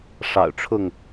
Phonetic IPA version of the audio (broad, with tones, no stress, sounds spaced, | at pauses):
ʂ ɑ̰˨˩ ʊ̯ ʈ͡ʂʰ ʊ˥˨ ŋ